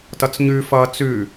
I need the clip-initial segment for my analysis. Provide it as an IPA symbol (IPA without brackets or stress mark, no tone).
t